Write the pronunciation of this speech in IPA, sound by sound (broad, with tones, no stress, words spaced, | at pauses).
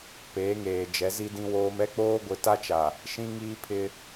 peː˨˦ŋeː˨ d͡ʒɛ˨˦zi˦dĩ˦woː˦m ɛ˦k͡poː˦ɡʷɪ˨˦ ta˦t͡ʃa˨ | ʃĩ˦ŋiː˦pʰɪ˦